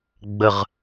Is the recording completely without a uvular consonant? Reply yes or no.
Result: no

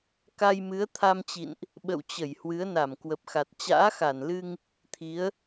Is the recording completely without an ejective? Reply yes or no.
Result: yes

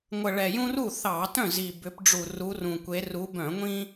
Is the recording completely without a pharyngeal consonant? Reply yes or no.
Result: yes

